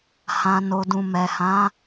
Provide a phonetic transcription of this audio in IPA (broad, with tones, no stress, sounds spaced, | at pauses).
h ã˨ n o˨ d ũ˨ m ɛ˨ h ã˨˦